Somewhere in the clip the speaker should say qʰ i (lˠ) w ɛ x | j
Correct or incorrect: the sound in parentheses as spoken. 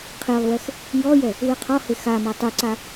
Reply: correct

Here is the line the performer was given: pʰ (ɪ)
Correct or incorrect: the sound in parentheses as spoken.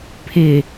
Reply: correct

